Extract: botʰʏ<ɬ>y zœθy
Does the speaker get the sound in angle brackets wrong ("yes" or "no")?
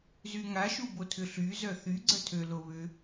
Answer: no